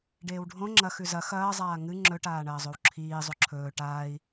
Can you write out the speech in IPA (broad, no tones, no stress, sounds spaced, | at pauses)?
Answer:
ɖ eː w ɖʱ õ ŋ͡ǁ ɐ x ʉ z ɐ x ɐː zˤ aː ŋ ɨ ŋ͡ǁ ɵ ʈ aː ɳ ɐː zˤ o w ǁʰ iː zˤ o ǁʰ ɵː ʈ aː i̯